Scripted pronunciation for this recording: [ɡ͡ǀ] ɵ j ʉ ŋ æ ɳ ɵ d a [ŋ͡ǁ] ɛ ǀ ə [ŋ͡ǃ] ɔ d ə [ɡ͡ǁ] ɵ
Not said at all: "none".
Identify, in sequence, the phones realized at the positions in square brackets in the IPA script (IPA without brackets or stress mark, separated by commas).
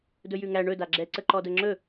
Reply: d, ɡ͡ǁ, ǃ, ŋ͡ǁ